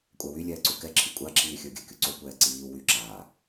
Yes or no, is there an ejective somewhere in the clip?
yes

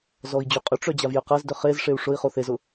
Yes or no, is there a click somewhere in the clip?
no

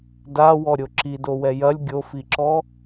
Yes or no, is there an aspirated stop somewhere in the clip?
no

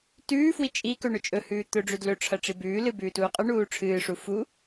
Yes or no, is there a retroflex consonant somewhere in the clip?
yes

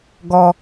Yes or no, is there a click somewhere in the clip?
no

